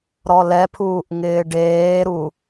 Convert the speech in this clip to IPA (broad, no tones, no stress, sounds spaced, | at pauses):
ɾ ɔ l ɛ pʰ uː ʔ ŋ ɪː ɖ eː ɾ u